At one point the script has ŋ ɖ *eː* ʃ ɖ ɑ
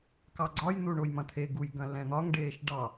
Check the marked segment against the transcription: correct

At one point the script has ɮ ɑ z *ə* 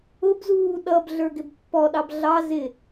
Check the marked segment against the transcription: incorrect: ɪ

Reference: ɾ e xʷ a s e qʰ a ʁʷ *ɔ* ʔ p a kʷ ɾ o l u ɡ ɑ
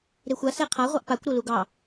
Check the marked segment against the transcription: incorrect: ɑ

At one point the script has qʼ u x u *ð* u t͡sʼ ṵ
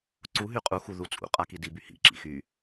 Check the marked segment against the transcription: correct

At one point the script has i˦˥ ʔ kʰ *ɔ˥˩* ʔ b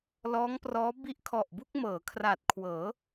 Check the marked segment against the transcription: incorrect: ɔ˨˩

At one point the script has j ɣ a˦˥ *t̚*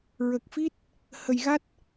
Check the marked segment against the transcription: correct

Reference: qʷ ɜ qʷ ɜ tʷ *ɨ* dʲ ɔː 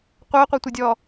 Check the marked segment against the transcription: incorrect: e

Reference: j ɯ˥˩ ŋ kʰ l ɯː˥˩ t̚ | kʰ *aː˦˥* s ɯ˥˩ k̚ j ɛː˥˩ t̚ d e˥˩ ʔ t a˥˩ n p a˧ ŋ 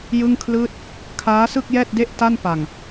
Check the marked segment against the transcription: correct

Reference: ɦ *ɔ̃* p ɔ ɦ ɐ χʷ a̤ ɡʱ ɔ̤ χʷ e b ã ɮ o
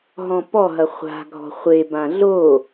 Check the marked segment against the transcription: correct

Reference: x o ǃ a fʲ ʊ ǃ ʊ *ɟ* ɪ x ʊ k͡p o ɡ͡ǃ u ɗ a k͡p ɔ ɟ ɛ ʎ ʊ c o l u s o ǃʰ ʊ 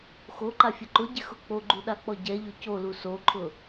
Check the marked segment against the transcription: correct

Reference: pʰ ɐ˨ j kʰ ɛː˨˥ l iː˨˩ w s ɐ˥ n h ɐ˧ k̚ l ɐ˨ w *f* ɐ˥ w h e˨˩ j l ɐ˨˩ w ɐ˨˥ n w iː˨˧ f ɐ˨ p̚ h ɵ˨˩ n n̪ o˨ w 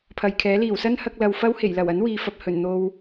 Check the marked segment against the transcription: correct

